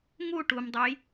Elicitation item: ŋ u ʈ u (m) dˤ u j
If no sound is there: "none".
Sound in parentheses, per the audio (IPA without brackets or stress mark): m